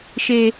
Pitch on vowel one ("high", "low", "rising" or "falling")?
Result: high